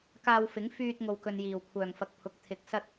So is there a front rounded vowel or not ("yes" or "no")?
yes